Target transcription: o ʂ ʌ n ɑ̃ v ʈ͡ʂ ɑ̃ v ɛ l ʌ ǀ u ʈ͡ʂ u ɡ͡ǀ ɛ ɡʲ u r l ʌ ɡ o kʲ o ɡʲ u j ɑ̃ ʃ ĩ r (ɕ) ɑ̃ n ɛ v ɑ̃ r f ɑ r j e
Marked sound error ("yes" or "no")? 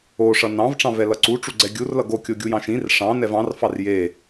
yes